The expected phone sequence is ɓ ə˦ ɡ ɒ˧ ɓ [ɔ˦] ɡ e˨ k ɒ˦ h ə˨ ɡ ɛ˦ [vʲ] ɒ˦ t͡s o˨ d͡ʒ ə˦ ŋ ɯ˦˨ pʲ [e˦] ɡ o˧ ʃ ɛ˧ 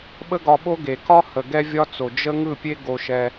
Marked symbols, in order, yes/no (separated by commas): no, yes, yes